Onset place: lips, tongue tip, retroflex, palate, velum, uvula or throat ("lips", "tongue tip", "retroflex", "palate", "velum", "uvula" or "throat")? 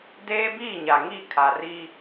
tongue tip